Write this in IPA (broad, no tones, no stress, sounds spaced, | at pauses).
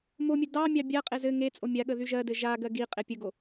m o mʲ ɘ d ɑ mʲ ɑ bʲ a qʼ e z ɘ ŋ e t͡sʼ o mʲ a ɠ ə ð y ʒ ɜ d ɘ ʒ a ɡ ɜ ɡ i qʼ e pʲ ə ɡ o